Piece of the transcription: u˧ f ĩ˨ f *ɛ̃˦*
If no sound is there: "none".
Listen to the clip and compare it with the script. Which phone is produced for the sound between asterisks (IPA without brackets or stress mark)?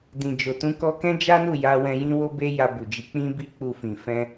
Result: ɛ̃˧